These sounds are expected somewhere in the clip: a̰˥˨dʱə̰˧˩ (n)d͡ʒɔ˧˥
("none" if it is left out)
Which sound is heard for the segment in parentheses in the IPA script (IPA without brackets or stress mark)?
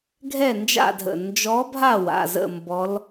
n